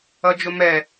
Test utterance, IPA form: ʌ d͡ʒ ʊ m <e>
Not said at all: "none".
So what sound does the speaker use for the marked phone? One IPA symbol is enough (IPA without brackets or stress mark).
ɛ